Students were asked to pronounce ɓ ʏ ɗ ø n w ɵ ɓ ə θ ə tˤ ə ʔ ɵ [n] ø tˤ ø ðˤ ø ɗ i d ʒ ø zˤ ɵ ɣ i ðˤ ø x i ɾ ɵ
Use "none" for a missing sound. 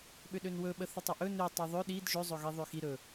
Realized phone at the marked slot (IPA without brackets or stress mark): n